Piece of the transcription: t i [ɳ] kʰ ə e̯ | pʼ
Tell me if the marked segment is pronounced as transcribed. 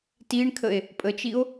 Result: yes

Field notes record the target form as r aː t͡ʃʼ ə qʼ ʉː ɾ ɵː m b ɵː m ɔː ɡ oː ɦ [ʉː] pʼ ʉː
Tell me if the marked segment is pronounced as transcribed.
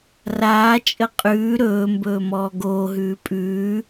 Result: yes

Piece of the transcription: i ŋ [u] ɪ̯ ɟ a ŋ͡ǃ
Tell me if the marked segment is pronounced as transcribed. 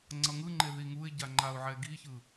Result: yes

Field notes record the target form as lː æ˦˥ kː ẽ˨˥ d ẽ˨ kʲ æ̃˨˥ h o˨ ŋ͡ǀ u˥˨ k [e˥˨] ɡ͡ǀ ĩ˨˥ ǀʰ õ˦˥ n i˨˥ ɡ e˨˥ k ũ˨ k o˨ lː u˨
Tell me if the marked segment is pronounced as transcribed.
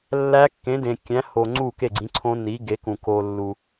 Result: yes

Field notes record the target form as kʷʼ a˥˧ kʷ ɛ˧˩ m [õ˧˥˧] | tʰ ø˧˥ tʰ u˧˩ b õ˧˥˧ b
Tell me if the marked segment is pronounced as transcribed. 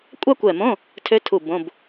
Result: yes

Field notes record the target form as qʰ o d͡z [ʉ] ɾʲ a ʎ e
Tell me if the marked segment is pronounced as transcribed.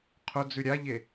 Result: yes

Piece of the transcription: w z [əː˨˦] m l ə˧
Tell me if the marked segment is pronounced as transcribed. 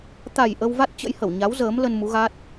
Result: yes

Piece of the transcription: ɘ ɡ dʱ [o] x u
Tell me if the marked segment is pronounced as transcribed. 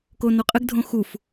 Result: no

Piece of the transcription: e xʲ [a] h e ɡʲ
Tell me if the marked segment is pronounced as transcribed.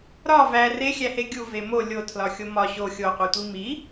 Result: no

